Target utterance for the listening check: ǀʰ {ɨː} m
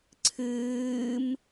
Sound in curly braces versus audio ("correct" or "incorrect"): correct